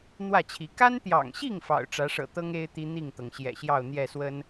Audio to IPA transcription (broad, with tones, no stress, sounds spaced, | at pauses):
n̪ w ä˥˨ t͡ɕʰ i˨˦ k a˦ n t̪ j ɑ̰˨˩ ŋ ɕ i˥˨ ŋ f ɑ̰˨˩ ʊ̯ ʈ͡ʂ ä˨˦ ʂ ɤ̰˨˩ t̪ ɤ˦ ŋ e˦ ɪ̯ t̪ i˦ n̪ i˥˨ ŋ t̪ ɤ˩ ŋ ɕ j ɛ̰˨˩ ɕ j ɑ˥˨ ʊ̯ n̪ j ɛ˥˨ s w ə˦ n